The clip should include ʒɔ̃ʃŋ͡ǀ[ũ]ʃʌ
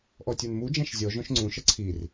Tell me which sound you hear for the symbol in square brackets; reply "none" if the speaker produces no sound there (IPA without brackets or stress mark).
ũ